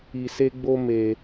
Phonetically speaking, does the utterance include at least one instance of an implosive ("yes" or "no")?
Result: no